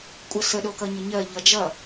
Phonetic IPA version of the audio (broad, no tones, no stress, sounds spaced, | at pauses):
kʷʼ ʌ s ə ɗ o k ʌ ɲ ə ɲ ɜ ʎ ʌ d͡ʒ ʌ